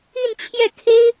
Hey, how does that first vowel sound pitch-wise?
falling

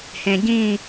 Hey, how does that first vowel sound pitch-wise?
low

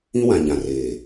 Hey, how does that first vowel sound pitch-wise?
high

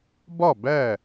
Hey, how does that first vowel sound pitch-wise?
falling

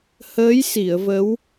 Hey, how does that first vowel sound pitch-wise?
rising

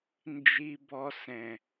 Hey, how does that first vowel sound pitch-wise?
high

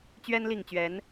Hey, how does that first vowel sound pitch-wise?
high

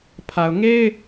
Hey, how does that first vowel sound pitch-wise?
low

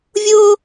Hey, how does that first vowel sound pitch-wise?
high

